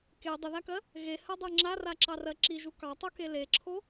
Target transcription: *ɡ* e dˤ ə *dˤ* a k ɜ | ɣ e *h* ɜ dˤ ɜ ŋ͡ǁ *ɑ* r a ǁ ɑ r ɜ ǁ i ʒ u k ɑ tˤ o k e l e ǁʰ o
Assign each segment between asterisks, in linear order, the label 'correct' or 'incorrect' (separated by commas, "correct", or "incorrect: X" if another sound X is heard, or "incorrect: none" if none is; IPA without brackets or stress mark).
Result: incorrect: k, incorrect: ð, correct, incorrect: a